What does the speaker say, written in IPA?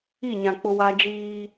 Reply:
i˦˨ ɲ ã˨ k͡p ʊ˦ w a˦ d͡ʒ iː˦

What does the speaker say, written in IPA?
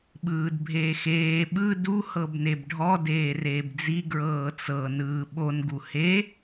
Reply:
ɓ ɯː d bʱ eː x eː ɓ ɯ d u h ɤ b n e b ɖʱ ɔ d eː r eː b d͡z i ɡ ɹ ɤː t͡s ɤ n ɯː ɓ o n ɡ u h e

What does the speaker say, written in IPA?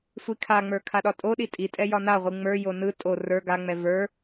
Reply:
sʷ i kʰ a ŋ͡m ə˞ kʰ a ɗ ɒ tʼ o ɗ i tʼ i tʼ ɛ j ɒ n a ʁʷ i ŋ͡m ə˞ j o n ɯ tʼ o r ə˞ ɡ a ŋ͡m ɛ v ə˞

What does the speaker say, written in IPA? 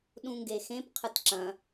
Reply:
ɗ ũ ŋ ɡ e x ẽ p qʰ ɨ t ǁ ɐ̃

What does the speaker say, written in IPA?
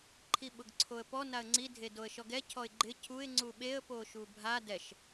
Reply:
ǃʰ i ɓ ʊ ɡ ǀʰ o ə̯ p ɔ n a ə̯ ŋ͡ǀ i dʱ e d o ə̯ ʃ ɔ ɡ ɛ cʰ ɔ ɪ̯ ɡ͡ǃ ɪ cʰ u ɪ̯ ŋ͡ǀ u ɓ e ə̯ p o ʃ u bʱ a d ɛ ʃ

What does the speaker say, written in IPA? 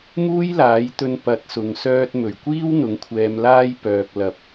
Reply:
m uː˥ j l aː˨˥ j t̪ ɵ˧ n p ɐ˨˥ t̚ s ʊ˨ ŋ s œː˧ t̚ m ɵ˨˩ ɥ kʷ iː˥ w n̪ ʊ˨˥ ŋ kʷʰ ɛː˧ m l aː˥ j p œː˨ k̚ l ɐ˨˥ p̚

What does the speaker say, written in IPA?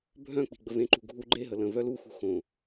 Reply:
bʱ œ̃ k͡p i̤ ɡ͡b ə v ẽ ǃ ṳ ɡʱ u ɡ͡ǃ e ɦ ə l ə̃ v œ l u x ṳ x õ

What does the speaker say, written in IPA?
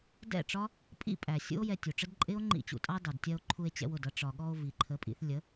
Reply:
d ɛ̰˦˨ ʈ͡ʂ ɒ˦ | pʼ ḭ˦ pʼ æ˨ sʲ ṵ˦ o̯ j ɛ˧ tʲ u˨ ʈ͡ʂ ə˦ d ǃʼ ɪ˦ o̯ ŋ͡ǃ ḭ˦˨ t͡ɕ ṵ˧ tʼ ɑ˦ d ɑ˨ d tʲ ɜ˧ o̯ ǃʰ u˧ e̯ t͡ɕ ɛ̰˧ w ʊ˨ d ʌ˧ ʈ͡ʂ ɒ˨ ɠ ɔ˧ o̯ v i˨ ǃʰ ə˨˦ pʼ ḭ˧ θ lʲ ə˨˦

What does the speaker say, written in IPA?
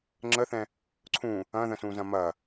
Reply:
ŋ͡ǁ ə θ ɛ̃ | ǀʰ ũ | ɐ̃ ð ə̃ s ũ z ɐ̃ m ɐ

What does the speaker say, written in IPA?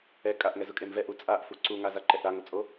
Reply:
ɛ kʼ a ʔ ŋ ɛ z ʊ kʼ e m v ɛ ʔ u t͡sʼ a ʔ f u ǀ u ŋ a z a ǃ ɛ ʔ ɾ a ŋ ʊ t͡sʼ o

